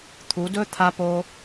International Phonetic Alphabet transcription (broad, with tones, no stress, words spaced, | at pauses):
t̪ʰu˩˧dɵ˥ t̪ʰa˧po˧